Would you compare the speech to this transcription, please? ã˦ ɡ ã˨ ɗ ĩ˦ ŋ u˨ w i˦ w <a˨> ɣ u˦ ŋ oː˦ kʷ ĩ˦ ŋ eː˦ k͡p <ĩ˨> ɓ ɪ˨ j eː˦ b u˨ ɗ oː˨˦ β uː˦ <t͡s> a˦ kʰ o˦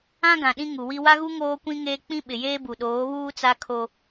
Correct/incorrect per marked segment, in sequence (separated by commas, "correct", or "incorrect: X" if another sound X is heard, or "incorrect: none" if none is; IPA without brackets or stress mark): incorrect: a˦, incorrect: ĩ˦, correct